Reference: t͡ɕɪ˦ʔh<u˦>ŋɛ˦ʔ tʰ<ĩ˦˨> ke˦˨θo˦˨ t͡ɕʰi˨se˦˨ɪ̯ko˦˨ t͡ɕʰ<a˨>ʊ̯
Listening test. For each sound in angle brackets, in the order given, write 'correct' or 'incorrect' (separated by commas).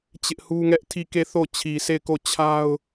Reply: correct, incorrect, incorrect